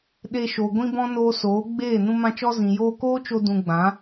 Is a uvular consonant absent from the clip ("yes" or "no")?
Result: yes